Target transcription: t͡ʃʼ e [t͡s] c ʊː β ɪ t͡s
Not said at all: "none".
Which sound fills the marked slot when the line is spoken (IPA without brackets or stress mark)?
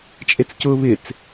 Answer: t͡s